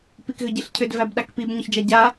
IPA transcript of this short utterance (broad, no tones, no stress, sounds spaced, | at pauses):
p i k ɣ ʏ ɟ i ɬ cʰ ʏ d v æ b ɗ a k p i b ɲ ʏ ç d͡ʒ a ɟ a